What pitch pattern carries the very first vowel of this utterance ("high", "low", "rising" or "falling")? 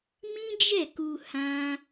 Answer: high